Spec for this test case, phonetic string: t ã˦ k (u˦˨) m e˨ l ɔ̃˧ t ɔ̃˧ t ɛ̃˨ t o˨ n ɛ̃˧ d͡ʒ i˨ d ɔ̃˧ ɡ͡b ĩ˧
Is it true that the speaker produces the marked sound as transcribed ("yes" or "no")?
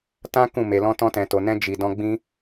no